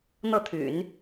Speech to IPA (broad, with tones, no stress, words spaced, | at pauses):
n̪ɤ˥˩t̪ʰy̰˨˩˦n